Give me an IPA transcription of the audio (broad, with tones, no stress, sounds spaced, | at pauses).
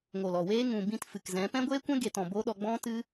ŋ o˨ l ɔ˨ w eː˦ ŋ ũ˨ b ĩ˧ t f ɨ˨ k z ɛ̃˨˦ p ɛ̃˦ ɡʷ eː˦ kʷ ɛ̃˦ ɡ e˧ t ɔ̃˨ b o˦ ɗ ɔ˧ ɡ͡b ɔ̃˦ t ɨ˦